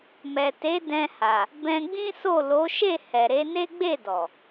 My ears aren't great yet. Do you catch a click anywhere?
no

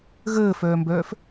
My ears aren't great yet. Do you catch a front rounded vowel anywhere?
yes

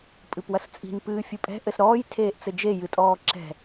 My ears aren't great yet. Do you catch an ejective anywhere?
yes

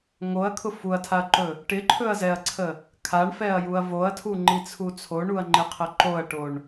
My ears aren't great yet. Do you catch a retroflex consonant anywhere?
yes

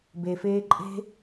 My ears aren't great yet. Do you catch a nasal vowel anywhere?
no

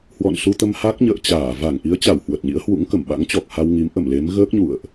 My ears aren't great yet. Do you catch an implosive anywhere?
yes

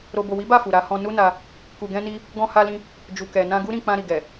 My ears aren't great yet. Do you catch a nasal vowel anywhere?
yes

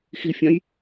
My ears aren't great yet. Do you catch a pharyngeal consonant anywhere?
no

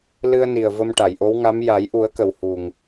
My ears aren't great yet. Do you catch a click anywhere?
no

